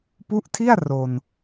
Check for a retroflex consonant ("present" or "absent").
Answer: absent